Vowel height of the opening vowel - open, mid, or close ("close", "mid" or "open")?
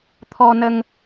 mid